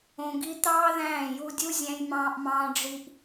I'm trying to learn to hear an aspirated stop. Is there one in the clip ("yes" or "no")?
no